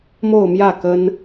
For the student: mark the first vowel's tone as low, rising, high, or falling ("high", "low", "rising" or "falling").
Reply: falling